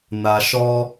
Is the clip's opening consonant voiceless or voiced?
voiced